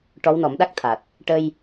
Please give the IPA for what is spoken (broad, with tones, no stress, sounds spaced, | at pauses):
ʈ ɔ˧˥ w n ɔ˨˩˦ m ɗ a˦˥ k̚ t̪ʰ a˨˩ t̚ | ʈ ə˧ j